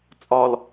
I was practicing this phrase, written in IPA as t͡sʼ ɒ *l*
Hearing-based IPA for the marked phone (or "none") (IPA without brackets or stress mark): l